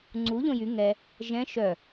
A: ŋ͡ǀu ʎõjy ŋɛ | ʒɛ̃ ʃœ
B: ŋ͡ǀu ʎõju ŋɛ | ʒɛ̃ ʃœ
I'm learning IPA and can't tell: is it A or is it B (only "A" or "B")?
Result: A